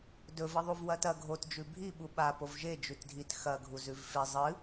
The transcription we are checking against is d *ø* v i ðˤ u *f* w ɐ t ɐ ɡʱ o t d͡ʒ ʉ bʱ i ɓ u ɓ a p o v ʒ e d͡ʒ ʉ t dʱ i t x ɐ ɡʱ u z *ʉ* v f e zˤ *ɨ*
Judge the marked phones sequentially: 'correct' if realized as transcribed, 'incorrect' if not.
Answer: incorrect: ɵ, incorrect: v, correct, correct

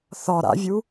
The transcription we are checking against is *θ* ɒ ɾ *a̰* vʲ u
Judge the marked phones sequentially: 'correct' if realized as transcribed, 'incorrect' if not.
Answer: correct, correct

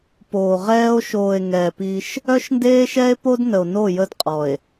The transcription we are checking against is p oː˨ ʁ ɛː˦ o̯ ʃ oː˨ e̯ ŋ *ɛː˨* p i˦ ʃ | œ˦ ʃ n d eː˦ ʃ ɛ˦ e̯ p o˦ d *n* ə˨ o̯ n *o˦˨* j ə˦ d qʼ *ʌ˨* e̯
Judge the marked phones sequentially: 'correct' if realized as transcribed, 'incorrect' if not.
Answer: correct, correct, correct, incorrect: ɔ˨

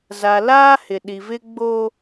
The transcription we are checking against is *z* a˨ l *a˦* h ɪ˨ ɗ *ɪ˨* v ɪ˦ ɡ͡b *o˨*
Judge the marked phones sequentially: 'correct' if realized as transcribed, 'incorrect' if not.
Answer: correct, incorrect: aː˦, incorrect: i˨, incorrect: o˦

